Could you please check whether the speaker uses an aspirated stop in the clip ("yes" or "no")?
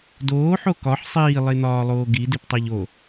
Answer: no